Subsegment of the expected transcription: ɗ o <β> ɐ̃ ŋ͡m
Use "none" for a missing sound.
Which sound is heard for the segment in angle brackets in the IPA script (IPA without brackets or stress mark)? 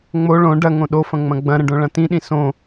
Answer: f